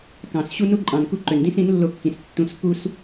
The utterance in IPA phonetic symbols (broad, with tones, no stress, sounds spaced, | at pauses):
k ɑ̃˨ s ɕ u˦ n u˦ ǃʼ ɑ̃˨ n k u˦˨ ǃ ø˨ n d ĩ˦ s ĩ˨˦ n lː o˧ kː ĩ˨ s tː ũ˧ s k u˦ s